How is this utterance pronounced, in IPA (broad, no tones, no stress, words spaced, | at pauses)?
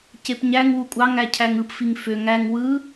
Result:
cepɲæŋ wukʷʼɑŋ æcʰæŋɯp fiŋføŋ æŋ wɯ